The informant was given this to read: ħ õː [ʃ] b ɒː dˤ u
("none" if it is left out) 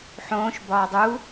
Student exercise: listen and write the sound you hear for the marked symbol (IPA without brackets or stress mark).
ʃ